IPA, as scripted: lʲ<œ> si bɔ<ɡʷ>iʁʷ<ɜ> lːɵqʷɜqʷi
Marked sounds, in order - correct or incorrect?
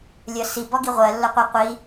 correct, incorrect, correct

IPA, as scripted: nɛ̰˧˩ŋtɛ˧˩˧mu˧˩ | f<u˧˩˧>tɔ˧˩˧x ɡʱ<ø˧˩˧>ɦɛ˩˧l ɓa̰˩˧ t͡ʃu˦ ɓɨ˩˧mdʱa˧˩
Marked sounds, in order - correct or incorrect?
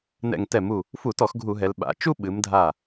correct, incorrect

